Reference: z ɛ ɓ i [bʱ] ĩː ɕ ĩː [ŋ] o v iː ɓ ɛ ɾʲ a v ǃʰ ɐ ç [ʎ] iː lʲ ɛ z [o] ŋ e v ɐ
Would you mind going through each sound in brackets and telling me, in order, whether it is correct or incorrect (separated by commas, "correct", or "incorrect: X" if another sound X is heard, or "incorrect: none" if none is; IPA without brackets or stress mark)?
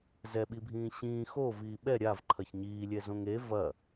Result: correct, incorrect: x, incorrect: ɲ, incorrect: õ